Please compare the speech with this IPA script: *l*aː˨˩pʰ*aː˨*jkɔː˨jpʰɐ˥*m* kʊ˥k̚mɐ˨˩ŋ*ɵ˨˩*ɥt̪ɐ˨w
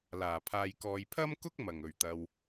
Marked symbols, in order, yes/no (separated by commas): yes, yes, yes, yes